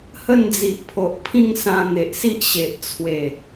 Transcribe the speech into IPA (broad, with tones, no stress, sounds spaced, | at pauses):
h ə˥˧ n d͡z i˨ ʔ pʰ o˨ ʔ pʰ ĩ˥˧ ŋ s ã˧ n̪ e˨ ʔ s i˦ ʔ ɕ e˨ ʔ t͡sʰ w e˨˩